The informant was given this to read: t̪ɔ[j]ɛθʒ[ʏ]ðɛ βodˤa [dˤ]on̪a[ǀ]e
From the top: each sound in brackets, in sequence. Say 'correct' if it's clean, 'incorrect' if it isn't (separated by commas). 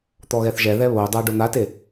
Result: incorrect, incorrect, incorrect, incorrect